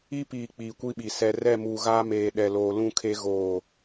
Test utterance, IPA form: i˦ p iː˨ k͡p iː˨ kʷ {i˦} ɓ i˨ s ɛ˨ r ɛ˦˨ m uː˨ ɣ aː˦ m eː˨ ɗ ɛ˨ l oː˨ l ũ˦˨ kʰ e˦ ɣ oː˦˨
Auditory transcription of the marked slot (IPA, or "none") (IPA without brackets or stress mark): i˦